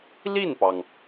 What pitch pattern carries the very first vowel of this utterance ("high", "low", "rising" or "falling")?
falling